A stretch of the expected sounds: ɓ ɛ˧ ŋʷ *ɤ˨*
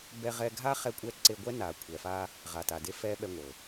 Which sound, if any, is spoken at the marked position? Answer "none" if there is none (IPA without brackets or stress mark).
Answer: ɤ˨